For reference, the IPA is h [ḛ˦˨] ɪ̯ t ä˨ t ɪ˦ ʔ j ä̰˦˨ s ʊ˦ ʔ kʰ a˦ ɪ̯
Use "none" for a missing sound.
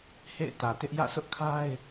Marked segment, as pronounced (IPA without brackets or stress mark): ḛ˦˨